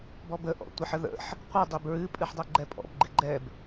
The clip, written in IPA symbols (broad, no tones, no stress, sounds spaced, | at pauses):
b ɔ b ə ʔ ɔ̰ tʷ ə ħ ə ð ə̰ ħ | qʷ ɨ dˤ i b ɹ ɨ pʼ ɨ ħ dˤ ɛ ɡ͡ǃ ɛ pʼ ɔ̰ b ɡ͡ǃ ɨ ɡ͡ǃ ɛ b